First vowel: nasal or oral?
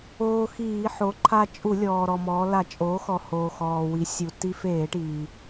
oral